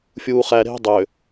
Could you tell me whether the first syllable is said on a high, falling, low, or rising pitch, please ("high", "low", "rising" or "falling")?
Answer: low